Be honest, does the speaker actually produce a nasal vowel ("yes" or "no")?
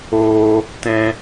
yes